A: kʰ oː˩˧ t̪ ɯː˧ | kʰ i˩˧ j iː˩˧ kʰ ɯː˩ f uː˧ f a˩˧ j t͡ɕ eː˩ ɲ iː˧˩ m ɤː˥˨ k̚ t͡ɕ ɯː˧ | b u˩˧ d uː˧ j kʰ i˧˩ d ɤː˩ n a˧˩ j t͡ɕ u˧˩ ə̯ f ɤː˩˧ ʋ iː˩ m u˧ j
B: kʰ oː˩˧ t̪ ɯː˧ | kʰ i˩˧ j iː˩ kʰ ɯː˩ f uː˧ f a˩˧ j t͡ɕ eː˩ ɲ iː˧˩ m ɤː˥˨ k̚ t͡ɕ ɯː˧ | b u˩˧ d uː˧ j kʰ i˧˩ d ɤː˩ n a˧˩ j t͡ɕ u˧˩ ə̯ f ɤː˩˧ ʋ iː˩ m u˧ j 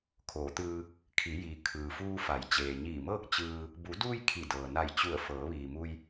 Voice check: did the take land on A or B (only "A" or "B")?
B